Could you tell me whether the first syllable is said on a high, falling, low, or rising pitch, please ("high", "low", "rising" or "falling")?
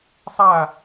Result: falling